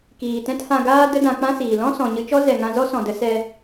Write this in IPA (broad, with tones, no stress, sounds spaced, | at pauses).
k iː˨ t ɛ̃˦ t h ã˧ ɡ aː˦ d ə˦ d ã˧ k͡p ã˦ s iː˨ l ɔ̃˦ s ɔ̃˨ ɲ ɨ˧ t͡ʃ ɔ˦ z ɛ˨ ŋ ã˧ z ɔ˦ s ɔ̃˨ d ə˨˦ s ɛ˧